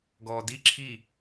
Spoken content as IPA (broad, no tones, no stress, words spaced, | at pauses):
ɡɔːdi ǁʰi